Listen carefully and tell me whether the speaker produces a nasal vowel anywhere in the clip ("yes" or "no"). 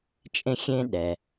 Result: yes